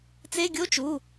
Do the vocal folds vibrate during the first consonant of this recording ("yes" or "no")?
no